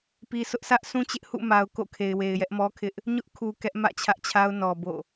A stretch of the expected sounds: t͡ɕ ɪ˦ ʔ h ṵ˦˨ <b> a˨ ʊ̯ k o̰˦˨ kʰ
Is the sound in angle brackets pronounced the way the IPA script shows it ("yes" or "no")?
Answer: no